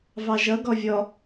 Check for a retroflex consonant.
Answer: absent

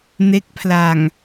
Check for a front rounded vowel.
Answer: absent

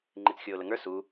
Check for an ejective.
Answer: absent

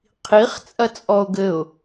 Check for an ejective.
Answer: present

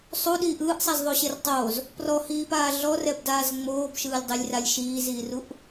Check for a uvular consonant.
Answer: absent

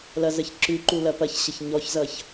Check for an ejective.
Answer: absent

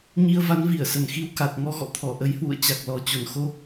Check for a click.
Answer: absent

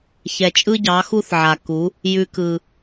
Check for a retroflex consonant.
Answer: absent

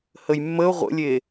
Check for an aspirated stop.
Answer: absent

